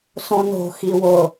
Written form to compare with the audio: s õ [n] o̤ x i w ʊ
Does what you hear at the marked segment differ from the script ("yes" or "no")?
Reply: no